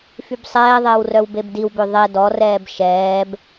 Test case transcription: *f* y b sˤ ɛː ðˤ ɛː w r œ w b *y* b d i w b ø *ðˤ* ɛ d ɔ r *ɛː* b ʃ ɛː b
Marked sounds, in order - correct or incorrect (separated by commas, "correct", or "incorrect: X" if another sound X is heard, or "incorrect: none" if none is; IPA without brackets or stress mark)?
correct, incorrect: e, correct, correct